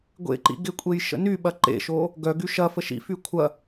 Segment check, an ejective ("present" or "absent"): present